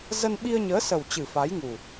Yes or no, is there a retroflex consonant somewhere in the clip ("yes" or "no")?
no